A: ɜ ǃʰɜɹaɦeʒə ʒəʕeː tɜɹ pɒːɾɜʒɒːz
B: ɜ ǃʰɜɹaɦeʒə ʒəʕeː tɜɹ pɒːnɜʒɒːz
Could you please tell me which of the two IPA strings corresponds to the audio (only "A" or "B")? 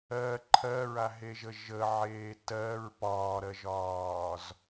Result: A